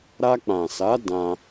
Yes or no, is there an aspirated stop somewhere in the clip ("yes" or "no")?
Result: no